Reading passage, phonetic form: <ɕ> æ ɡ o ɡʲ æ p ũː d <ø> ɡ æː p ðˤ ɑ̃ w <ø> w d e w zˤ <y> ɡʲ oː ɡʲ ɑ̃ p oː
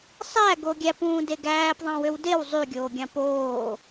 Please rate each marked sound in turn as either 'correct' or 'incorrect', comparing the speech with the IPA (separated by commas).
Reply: incorrect, incorrect, correct, correct